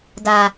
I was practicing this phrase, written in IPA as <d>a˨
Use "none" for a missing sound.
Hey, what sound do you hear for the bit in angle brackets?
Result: d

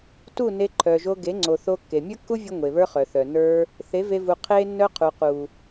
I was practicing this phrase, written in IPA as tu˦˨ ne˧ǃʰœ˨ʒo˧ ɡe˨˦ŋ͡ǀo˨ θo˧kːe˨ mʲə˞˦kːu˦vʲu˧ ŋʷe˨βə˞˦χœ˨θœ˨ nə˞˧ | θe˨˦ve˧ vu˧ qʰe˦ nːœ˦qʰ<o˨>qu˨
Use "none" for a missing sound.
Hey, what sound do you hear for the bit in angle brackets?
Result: u˨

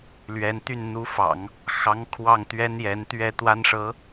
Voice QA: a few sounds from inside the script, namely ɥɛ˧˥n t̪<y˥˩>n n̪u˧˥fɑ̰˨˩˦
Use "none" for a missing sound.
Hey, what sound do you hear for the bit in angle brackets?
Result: y˥˩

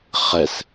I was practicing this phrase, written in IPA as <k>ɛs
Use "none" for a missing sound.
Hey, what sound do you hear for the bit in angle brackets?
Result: χ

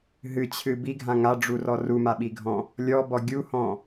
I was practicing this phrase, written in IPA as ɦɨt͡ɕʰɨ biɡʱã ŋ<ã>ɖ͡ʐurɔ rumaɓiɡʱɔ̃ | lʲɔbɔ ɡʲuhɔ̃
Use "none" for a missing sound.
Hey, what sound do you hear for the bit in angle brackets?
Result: a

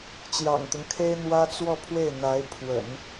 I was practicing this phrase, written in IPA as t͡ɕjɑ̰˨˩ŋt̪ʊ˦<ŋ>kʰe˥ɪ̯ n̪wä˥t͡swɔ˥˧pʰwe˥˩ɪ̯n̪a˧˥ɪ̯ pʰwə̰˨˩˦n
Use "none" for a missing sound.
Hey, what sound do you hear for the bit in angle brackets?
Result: ŋ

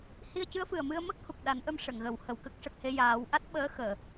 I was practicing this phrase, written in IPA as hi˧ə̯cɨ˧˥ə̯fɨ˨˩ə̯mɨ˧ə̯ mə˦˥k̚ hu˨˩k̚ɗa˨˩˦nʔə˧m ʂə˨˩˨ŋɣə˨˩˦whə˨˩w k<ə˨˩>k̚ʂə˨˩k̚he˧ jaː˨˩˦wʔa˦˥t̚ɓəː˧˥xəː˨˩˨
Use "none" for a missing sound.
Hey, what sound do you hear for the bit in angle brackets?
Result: ə˦˥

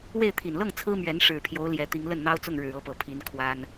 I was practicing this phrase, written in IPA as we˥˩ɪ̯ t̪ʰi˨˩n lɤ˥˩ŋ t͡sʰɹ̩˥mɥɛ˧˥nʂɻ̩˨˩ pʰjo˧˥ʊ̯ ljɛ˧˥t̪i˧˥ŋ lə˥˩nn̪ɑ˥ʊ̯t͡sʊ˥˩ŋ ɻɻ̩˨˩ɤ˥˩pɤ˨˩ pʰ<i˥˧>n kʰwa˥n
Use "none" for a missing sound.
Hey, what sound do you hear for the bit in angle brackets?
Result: i˧˥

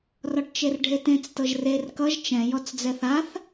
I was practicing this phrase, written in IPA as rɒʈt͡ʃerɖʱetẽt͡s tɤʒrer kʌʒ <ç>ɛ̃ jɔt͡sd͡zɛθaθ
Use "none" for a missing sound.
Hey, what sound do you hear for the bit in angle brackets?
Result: t͡ʃ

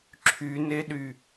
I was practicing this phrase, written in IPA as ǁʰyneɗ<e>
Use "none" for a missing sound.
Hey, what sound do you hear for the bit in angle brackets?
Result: y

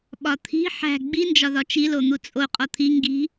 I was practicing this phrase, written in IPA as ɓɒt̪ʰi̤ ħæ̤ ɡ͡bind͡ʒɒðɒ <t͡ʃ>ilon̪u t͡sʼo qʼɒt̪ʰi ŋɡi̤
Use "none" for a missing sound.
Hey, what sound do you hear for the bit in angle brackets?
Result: t͡ʃ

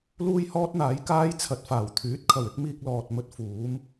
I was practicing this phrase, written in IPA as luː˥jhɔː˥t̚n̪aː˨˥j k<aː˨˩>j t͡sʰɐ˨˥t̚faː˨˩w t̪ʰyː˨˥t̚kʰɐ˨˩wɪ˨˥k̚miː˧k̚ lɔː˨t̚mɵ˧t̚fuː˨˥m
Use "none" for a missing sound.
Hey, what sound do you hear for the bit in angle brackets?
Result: aː˥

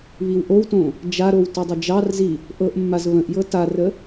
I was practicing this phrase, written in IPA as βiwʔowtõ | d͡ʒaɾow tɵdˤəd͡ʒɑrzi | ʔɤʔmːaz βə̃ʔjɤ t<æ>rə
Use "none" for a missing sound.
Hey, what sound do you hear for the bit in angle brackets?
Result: a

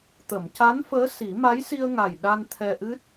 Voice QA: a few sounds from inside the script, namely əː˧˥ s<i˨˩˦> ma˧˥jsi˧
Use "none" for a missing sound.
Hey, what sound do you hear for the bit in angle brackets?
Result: i˨˩˦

